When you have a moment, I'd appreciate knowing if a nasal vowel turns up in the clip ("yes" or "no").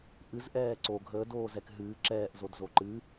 no